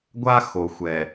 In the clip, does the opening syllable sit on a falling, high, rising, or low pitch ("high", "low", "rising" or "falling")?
high